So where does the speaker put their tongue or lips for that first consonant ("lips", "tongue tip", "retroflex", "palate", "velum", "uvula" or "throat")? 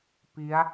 lips